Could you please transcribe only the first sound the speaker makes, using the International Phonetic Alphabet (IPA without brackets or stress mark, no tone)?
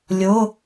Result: lʲ